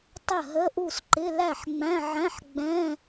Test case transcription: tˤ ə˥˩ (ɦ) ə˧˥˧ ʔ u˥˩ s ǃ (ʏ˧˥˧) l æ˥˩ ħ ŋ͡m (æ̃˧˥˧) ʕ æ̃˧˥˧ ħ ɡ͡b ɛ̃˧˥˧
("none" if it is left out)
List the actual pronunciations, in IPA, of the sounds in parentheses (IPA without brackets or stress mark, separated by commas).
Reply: ɦ, ɪ˧˥˧, æ̃˧˥˧